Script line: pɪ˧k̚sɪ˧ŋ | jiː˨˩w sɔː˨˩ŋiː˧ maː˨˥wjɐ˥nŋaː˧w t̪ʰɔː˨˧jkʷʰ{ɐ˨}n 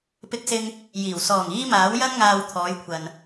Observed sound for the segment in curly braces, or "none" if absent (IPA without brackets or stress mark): ɐ˨